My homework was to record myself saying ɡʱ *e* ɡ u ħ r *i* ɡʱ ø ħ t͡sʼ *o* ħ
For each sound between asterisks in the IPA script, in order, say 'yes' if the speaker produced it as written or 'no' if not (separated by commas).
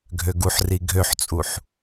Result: no, yes, no